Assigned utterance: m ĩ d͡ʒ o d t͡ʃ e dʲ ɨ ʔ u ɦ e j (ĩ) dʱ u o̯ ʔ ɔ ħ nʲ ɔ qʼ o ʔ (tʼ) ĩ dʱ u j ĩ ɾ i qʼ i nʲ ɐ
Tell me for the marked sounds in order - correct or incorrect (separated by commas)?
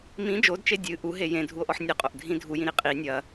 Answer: incorrect, incorrect